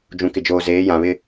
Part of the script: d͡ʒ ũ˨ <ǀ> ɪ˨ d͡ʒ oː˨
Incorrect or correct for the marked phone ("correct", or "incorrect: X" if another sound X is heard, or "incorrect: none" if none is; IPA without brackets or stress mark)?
incorrect: k